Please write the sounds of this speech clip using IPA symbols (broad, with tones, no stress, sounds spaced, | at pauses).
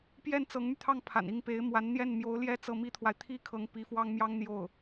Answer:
p j ɛ˥˩ n t͡s ɤ˧˥ ŋ m y˧ t̪ʰ ɑ˥˩ ŋ pʰ a̰˨˩ n i˥˩ ŋ p e˧˥ ɪ̯ m w a˧˥ n n̪ j ɛ˥˩ n m j o˧˥ ʊ̯ l j ɛ˥˧ t͡s ɤ˥˩ m i˥ t̪ʰ w a˨ ɪ̯ t̪ʰ i˥ kʰ ɤ˧˥ ŋ p i˧˥ f w ɑ˥ ŋ m j ɑ˥ ŋ n̪ j o˥˩ ʊ̯